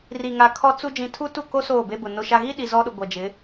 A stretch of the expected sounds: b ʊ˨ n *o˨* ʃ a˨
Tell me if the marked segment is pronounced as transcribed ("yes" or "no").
yes